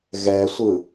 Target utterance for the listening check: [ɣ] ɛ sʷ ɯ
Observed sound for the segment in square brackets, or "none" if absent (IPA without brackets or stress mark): ɣ